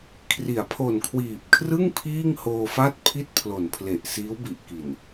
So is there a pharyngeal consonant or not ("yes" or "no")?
no